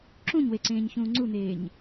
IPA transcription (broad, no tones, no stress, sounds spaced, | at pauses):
ǁ ũ ɲ w e ǀ ẽː ɲ ç ũː ŋ͡ǀ u n̪ eː ɲ